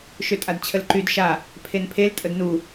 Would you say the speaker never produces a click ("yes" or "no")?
no